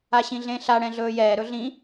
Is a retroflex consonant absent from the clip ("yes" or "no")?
no